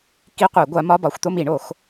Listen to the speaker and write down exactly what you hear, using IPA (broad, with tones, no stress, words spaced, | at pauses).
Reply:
ki˧˥˧qʷɛ˨˩˦ ɡʷa˨˥mɒ˧˥˧bɒ˨˩˦xʷ t̪o˦˨mi˨˩˦ɳo˨˩˦x